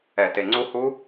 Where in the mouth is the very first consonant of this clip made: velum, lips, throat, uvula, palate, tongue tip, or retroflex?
tongue tip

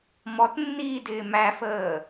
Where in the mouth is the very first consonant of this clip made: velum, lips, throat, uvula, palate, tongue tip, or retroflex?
lips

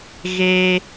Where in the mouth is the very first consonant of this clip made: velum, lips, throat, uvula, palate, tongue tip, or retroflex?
velum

